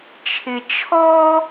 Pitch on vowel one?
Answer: low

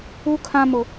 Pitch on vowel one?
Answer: high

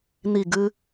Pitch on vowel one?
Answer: falling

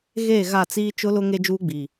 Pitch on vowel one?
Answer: falling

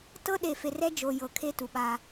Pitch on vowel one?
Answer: high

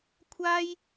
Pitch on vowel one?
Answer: high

